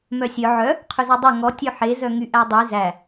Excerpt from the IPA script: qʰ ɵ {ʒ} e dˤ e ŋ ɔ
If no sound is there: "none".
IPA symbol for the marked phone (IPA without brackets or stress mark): z